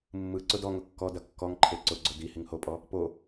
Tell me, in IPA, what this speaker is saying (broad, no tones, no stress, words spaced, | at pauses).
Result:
mːɯ ǀʊdɔŋʊ kːɔdɐ kːɔŋǃʰe ǀʊɡ͡ǀʊ di hiŋhopʼɔ | po